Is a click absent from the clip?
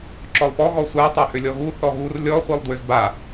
no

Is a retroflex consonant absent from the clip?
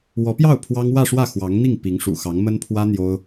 no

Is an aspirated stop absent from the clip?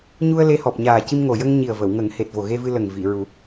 yes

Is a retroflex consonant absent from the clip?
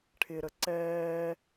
no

